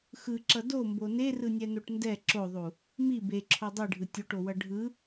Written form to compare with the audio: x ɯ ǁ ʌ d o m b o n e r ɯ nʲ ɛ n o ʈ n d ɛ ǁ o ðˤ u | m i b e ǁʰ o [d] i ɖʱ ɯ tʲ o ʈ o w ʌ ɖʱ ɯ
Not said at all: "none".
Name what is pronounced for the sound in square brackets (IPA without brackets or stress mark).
dˤ